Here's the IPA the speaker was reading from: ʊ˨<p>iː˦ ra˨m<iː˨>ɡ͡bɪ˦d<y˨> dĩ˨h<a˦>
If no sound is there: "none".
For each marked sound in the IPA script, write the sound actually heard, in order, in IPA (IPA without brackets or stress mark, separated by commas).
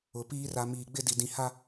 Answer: p, iː˨, i˨, a˦